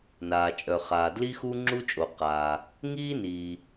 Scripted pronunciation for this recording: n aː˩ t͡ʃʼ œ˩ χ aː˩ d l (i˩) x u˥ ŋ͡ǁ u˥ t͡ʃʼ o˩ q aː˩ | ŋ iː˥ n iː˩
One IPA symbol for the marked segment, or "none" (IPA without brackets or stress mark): i˥